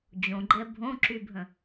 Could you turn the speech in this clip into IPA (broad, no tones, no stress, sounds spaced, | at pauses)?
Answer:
d͡ʑ õ ɡ͡ǃ ɛ bʱ õ ǁ y bʱ ə̃